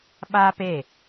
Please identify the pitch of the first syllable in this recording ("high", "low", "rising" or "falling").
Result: high